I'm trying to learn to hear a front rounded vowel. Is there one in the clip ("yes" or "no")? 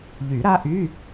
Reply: yes